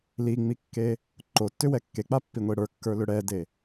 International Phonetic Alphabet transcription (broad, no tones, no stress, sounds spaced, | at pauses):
l i ŋ͡m i kː e | ǃ o tː ʏ w ɛ kː e k͡p a pː i ŋʷ e ɽ ə˞ kː ə˞ l ʏ ɽ ɛ d e